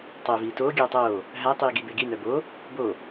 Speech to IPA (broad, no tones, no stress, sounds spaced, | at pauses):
tˤ əː v iː t oː ɡʲ oː tˤ oː | ɦ æ tˤ iː ɡ i b e ɡ i n œ b o | b o